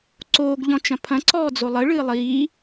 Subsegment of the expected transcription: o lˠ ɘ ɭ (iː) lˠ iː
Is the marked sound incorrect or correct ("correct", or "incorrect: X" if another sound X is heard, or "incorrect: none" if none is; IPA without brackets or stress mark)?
incorrect: ɨː